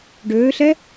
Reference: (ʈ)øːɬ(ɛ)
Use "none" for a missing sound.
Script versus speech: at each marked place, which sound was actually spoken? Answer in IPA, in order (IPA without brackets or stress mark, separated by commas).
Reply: ɖ, ɛ